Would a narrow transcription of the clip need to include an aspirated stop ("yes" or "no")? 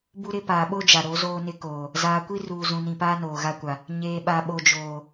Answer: no